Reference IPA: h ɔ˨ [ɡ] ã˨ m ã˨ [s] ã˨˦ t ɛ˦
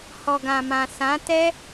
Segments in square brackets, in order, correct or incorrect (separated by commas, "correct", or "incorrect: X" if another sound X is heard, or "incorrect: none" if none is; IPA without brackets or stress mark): correct, correct